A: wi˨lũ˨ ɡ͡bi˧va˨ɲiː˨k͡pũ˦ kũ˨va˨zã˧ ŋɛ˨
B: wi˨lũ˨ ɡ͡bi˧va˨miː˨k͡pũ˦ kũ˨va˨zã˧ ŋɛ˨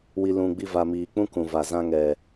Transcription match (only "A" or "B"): B